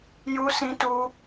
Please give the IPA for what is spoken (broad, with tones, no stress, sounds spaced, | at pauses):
j u˦ s ĩ˦ t u˦